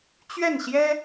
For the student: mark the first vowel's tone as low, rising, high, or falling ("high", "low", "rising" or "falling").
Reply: falling